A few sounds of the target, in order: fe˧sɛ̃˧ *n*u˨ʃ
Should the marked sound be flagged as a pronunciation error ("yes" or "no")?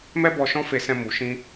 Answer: yes